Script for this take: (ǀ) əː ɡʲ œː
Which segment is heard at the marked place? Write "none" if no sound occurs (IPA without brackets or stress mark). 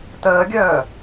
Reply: t